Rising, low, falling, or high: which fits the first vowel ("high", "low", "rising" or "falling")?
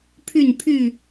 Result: falling